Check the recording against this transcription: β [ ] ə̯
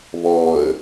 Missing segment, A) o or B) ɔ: B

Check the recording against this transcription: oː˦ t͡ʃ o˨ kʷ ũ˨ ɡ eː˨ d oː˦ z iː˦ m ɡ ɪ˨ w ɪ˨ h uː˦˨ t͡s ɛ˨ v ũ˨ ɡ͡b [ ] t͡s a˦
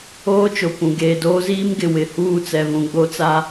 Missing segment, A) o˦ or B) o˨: A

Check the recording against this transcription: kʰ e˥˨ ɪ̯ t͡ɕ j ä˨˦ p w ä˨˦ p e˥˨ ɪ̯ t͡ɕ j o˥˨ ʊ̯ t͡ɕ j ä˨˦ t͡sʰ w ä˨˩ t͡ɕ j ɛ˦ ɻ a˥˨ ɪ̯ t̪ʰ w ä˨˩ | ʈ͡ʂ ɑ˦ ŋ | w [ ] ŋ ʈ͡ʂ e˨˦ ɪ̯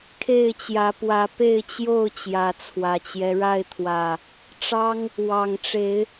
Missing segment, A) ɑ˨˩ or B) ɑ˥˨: A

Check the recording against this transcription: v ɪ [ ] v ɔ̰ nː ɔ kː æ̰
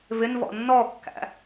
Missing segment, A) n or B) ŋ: A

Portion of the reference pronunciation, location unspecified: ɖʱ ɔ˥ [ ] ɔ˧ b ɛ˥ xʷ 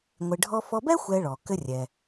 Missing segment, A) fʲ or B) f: B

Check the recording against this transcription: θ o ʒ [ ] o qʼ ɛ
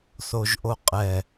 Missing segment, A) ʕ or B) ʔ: B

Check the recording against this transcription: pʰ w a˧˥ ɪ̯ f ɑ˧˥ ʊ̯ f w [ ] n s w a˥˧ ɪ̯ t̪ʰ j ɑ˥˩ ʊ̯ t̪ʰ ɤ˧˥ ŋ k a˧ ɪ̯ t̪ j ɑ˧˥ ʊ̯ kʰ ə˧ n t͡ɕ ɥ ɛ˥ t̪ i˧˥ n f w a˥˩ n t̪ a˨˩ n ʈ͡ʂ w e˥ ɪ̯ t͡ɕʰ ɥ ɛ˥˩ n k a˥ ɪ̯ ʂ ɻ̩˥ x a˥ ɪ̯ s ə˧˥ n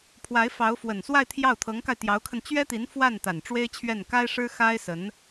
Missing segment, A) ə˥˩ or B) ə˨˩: B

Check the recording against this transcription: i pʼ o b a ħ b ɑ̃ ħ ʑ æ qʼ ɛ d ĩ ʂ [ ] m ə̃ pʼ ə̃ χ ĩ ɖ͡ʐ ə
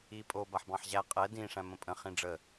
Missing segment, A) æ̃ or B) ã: A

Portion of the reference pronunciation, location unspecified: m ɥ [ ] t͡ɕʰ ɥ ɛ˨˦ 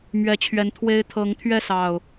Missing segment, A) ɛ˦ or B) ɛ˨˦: B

